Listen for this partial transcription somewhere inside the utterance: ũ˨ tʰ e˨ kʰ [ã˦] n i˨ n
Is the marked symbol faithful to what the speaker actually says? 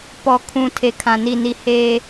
no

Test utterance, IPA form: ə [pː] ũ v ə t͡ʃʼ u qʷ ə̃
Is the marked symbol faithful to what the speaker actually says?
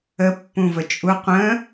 yes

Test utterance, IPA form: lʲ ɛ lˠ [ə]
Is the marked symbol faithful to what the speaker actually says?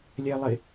no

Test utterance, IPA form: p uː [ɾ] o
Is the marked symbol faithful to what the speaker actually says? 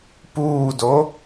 no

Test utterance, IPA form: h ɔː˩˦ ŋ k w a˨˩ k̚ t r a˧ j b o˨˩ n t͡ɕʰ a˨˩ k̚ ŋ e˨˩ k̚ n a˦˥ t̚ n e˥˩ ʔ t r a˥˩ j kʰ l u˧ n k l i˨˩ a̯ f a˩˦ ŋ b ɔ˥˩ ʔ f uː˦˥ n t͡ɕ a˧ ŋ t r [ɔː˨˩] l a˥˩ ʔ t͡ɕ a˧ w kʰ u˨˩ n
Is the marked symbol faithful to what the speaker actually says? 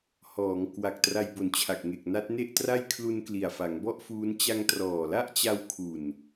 yes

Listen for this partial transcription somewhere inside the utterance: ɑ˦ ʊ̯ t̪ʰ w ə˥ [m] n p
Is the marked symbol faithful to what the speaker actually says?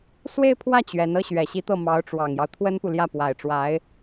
no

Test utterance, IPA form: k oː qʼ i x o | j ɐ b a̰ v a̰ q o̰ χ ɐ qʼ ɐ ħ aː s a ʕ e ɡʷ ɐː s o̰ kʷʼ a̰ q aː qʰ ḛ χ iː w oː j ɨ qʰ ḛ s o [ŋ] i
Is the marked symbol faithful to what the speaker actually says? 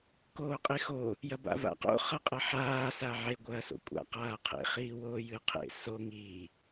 yes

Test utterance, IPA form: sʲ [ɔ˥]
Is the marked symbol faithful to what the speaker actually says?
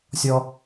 yes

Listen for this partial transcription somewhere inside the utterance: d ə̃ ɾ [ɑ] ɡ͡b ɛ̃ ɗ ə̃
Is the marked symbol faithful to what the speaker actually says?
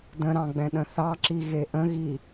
no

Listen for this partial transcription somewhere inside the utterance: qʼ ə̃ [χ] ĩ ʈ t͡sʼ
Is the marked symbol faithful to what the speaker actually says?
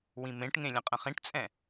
yes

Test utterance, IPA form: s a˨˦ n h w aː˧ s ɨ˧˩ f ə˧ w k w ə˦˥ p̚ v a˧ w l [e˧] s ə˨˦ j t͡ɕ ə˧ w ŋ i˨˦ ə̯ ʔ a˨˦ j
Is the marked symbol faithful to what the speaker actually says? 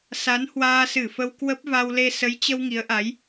yes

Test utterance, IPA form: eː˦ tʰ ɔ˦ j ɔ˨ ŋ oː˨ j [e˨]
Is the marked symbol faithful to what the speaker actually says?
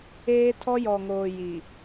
no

